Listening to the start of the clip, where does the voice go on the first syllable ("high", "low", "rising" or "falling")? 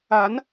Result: rising